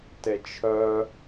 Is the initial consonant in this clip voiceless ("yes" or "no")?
yes